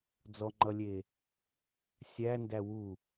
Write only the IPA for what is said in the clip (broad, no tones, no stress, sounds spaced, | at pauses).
d͡z ɔ ŋ͡ǃ ʌ lʲ e | sʲ æ n d æ w u